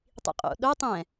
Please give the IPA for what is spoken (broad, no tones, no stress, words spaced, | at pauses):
tˤḭqʼo̰ ɗo tˤɛ̃